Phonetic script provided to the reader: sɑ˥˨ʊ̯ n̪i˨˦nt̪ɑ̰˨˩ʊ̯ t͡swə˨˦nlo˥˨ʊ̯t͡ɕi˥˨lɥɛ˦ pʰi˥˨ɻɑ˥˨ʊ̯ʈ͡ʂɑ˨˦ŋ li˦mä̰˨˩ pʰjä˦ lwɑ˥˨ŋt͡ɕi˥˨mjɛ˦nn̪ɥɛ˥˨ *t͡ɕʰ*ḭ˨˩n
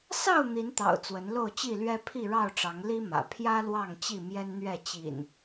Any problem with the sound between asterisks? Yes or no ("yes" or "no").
yes